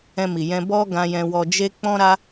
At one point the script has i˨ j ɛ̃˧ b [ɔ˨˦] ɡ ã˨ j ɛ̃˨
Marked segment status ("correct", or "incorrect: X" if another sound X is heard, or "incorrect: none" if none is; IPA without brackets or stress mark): incorrect: ɔ˧